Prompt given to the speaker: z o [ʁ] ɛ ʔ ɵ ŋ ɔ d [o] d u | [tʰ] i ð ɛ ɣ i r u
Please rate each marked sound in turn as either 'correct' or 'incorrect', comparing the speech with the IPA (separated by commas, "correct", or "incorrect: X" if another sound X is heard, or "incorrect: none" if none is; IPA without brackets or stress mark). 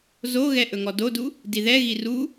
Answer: incorrect: ɣ, correct, incorrect: d